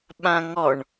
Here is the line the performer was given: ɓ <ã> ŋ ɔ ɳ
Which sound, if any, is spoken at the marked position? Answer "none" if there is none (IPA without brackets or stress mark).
ã